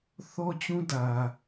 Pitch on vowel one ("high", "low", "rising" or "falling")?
high